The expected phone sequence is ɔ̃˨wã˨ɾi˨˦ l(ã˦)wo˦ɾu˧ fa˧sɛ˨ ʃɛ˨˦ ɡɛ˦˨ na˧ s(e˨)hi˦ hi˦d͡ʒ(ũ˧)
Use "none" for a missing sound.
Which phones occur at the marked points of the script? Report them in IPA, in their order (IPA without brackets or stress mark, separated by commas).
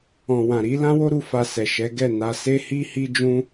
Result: ã˦, e˦, ũ˦